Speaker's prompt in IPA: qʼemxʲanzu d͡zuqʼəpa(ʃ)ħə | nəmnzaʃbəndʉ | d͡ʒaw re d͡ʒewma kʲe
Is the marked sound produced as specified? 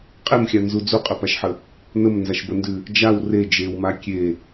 yes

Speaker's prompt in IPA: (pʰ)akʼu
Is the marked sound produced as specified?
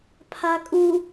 yes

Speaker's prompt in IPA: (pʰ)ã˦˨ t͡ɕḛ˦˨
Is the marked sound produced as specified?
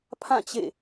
yes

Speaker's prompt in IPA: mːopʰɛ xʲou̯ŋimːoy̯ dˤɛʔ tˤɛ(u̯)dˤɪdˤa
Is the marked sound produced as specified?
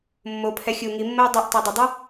no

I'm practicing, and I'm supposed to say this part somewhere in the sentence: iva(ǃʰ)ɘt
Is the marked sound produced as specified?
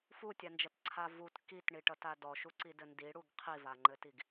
no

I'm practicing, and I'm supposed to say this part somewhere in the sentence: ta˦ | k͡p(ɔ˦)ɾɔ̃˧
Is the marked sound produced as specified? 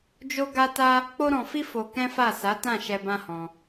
no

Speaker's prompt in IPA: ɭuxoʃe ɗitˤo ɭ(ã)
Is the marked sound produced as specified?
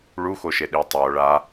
no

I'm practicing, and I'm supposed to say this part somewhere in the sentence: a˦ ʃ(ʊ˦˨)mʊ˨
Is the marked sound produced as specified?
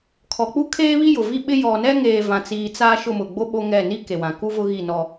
yes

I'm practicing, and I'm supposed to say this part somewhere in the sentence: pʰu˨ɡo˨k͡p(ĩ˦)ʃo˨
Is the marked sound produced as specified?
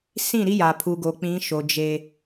no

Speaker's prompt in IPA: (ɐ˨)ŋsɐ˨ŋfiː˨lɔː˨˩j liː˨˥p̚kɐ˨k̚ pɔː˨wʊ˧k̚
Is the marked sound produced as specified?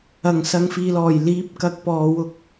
no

